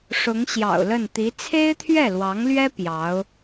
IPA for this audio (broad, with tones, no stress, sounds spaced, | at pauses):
ʂ ʊ˧˥ ŋ ɕ j ɑ̰˨˩ ʊ̯ l ə˥˩ n t̪ i˧˥ t͡sʰ e˥ ɪ̯ t̪ʰ ɥ ɛ˥˩ l w ɑ˧˥ ŋ l ɥ ɛ˥ p j ɑ˧˥ ʊ̯